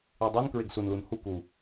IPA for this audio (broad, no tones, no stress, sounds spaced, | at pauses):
i dˤ i n k ɹ e ɡ s u n l u n h u k u